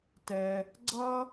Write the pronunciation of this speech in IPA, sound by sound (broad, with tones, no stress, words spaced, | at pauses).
tɛ˩ | ɡ͡ǀʌ˥